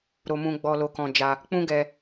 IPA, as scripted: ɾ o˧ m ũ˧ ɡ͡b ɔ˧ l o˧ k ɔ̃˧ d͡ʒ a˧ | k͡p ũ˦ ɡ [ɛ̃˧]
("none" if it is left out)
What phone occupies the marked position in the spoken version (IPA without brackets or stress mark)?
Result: ɛ˧